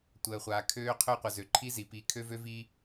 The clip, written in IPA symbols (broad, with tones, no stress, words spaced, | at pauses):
tʷəː˨χʷaː˨ kʰøː˦qʰø˦qʷə˨zø˨ ǃʰi˦zi˨ pi˨ kʰø˦vø˦vi˦